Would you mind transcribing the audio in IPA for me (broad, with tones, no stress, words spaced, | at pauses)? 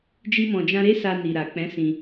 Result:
d͡ʒi˦mɔ̃˧d͡ʒã˦ ɾe˦sa˧ ni˨ɾa˨k͡pɛ̃˨˦sĩ˧